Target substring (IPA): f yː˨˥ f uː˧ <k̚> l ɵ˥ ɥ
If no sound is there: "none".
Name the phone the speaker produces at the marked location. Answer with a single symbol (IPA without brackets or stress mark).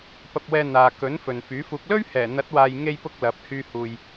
k̚